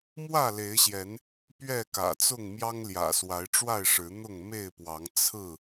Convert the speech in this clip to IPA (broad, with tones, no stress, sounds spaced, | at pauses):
m w ä˥˨ l e˨˦ ɪ̯ ɕ j ɛ˨˦ n | p ɥ ɛ˥˨ k ä̰˨˩ t͡s ʊ˥˨ ŋ m j ɑ˦ ŋ l j ä̰˨˩ s w a˨˦ ɪ̯ ʈ͡ʂ w a˥˨ ɪ̯ ʂ ɻ̩˨˦ n̪ ʊ˥˨ ŋ m e˥˨ ɪ̯ p w ɑ˨˦ ŋ t͡sʰ ɹ̩˥˨